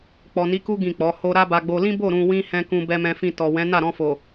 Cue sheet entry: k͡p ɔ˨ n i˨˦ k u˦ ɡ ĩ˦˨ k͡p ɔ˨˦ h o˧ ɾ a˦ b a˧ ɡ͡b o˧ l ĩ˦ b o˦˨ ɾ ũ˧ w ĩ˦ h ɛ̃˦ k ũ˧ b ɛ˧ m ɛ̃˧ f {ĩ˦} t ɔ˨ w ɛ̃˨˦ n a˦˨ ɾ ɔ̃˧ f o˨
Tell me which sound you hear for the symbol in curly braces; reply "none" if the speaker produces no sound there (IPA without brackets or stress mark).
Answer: ĩ˧